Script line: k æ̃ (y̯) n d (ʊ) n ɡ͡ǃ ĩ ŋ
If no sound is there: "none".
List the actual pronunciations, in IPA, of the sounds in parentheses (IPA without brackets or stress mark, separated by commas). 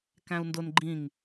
u̯, ʊ